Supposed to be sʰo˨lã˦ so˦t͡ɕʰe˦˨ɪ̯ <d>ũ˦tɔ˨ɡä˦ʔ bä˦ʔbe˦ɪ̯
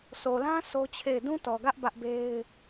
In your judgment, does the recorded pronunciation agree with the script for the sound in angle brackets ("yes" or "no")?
yes